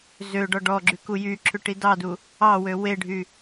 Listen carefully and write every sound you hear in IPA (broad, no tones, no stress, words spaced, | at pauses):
zø ɖɔɖɔɡ͡ǁy kujyǁʰʉ ʈidɑdu | ɑwø weɖʱy